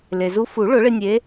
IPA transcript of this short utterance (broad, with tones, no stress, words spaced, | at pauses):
le˩zu˧fu˨˩˦ ɭʊ˨˩˦ɭɪ˧ nʲe˧˥